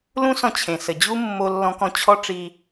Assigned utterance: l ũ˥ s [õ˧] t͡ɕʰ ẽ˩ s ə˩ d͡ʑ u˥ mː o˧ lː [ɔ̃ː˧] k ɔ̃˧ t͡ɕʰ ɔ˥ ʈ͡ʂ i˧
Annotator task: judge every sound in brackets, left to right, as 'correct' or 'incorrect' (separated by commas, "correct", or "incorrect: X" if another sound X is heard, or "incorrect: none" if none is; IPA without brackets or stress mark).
incorrect: ɔ̃˧, incorrect: ɔ̃˧